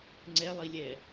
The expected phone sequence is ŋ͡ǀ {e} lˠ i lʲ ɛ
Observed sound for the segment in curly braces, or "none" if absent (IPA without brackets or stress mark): ɛ